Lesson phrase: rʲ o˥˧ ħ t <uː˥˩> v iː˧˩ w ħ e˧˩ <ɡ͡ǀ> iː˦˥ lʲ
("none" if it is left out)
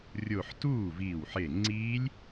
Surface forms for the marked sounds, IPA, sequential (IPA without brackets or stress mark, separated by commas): uː˥˩, ŋ͡ǀ